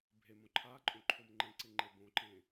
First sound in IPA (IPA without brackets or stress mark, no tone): bʱ